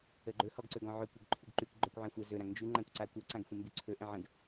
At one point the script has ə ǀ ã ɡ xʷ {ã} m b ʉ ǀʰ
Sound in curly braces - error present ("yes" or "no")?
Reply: yes